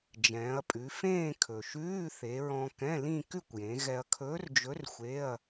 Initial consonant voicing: voiced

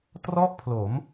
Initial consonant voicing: voiceless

